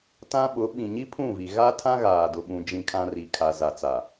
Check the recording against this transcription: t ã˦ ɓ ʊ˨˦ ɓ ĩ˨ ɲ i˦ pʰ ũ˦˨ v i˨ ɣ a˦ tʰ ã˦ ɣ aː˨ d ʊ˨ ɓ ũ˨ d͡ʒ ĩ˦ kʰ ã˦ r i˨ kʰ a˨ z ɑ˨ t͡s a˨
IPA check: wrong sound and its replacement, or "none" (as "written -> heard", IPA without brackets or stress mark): ɑ˨ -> a˨